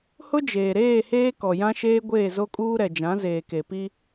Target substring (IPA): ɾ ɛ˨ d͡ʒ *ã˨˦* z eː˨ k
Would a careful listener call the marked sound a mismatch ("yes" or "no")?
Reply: no